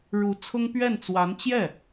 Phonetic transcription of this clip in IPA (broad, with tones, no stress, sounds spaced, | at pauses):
ɻ u˧˥ t͡sʰ ʊ˥ ŋ p ɥ ɛ˥˩ n t͡s w a˧˥ n t͡ɕ j ɛ˥˩